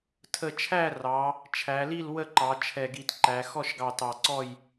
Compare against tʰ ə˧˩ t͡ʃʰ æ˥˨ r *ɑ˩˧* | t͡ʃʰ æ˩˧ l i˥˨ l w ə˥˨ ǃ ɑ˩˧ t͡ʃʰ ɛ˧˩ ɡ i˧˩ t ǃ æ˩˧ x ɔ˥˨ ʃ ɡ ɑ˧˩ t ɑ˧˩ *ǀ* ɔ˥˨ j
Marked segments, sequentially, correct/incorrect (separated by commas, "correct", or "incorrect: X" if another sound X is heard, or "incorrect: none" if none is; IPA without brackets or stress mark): correct, correct